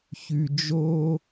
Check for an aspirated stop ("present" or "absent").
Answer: absent